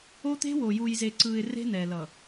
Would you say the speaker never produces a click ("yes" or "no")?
no